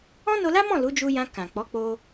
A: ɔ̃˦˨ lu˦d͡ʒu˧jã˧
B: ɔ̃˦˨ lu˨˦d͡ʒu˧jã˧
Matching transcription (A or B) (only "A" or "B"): B